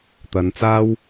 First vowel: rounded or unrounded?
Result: unrounded